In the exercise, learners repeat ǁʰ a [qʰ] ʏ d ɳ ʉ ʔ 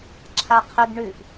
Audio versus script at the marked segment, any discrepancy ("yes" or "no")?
no